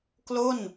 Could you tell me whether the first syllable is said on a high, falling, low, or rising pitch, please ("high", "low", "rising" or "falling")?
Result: falling